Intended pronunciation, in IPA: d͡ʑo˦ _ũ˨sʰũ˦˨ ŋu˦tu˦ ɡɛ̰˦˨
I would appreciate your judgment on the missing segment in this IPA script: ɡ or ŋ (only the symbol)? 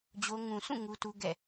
ŋ